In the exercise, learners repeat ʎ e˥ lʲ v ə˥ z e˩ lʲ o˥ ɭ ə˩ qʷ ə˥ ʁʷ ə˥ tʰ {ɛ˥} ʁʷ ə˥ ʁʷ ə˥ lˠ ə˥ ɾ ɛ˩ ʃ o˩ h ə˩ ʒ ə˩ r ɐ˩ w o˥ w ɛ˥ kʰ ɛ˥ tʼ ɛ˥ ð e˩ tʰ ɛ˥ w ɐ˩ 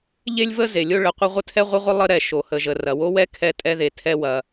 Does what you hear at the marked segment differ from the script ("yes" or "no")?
no